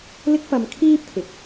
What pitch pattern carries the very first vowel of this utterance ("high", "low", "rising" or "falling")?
high